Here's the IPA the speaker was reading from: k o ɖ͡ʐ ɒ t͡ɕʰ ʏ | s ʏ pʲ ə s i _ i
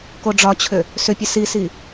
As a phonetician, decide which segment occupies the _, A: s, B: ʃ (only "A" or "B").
A